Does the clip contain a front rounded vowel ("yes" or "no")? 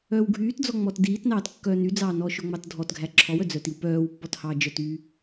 yes